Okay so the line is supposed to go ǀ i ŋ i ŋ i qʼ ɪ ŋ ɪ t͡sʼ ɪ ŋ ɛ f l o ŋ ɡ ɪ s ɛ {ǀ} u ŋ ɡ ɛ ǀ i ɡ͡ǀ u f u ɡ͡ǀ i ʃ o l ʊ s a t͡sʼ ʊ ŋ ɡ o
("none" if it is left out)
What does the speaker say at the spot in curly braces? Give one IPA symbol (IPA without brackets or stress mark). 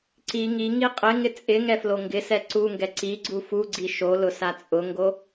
ǀ